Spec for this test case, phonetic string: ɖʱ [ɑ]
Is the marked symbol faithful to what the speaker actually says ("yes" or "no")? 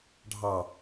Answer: yes